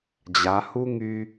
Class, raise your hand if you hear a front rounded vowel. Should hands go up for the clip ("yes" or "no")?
yes